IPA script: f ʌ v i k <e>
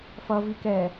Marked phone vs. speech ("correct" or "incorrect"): incorrect